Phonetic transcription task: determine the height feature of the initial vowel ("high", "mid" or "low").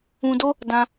high